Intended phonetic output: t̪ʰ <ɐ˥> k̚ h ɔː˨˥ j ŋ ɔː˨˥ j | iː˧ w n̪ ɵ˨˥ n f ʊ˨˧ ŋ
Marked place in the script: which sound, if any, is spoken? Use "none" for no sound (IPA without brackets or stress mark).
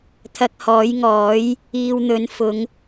ɐ˧